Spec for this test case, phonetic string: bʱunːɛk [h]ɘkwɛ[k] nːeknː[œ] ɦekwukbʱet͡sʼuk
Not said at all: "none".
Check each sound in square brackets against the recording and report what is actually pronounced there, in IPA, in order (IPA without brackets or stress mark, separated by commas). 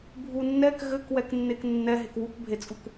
ɣ, k, ɛ